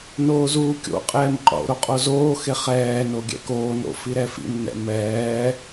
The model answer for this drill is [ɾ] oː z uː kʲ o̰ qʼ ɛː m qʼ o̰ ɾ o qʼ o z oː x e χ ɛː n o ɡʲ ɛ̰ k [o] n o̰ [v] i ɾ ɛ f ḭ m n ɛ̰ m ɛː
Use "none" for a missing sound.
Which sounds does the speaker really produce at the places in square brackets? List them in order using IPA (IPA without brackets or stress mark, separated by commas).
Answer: n, oː, f